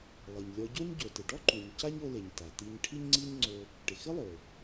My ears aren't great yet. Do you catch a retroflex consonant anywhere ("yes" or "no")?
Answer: yes